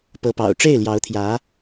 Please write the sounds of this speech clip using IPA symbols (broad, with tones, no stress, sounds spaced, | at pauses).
p ɤ˧˥ p ɑ̰˨˩ ʊ̯ ʈ͡ʂ e˥˩ ɪ̯ l j ɑ˧˥ ʊ̯ t̪ʰ j ä˧˥